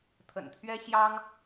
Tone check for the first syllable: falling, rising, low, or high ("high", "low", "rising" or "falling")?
low